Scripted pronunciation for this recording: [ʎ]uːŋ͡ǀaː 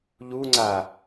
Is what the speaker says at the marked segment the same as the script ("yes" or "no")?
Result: yes